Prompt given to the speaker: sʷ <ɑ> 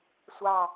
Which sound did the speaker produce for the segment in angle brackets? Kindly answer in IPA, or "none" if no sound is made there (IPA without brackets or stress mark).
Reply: ɑ